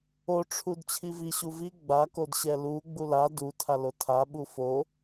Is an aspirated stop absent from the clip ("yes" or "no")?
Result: no